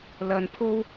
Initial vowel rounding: unrounded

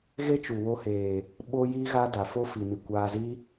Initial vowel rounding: unrounded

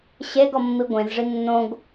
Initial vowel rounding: unrounded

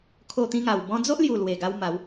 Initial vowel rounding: rounded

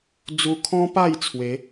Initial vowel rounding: rounded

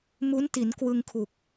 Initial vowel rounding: rounded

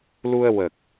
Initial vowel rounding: rounded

